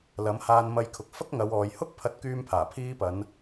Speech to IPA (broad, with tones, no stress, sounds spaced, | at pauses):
l ɐ˨˥ m h aː˧ n m ɐ˧ j kʰ ʊ˨ k̚ f ɐ˥ k̚ ŋ ɐ˨˧ w ɔː˨ j h ʊ˥ k̚ pʰ ɐ˧ t̚ k yː˧ m pʰ aː˨˩ pʰ iː˧ p ɐ˨˧ n